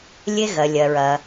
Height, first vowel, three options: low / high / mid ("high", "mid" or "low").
mid